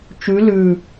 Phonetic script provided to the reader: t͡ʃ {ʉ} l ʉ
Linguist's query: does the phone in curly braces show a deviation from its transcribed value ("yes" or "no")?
no